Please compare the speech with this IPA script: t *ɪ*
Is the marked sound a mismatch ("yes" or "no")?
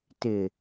no